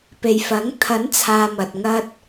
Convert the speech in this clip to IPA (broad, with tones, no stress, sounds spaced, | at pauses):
p e˨ j f ɐ˨˥ ŋ t̪ʰ ɐ˨˥ n t͡sʰ aː˨ m ɐ˨ t̚ ŋ ɐ˥ t̚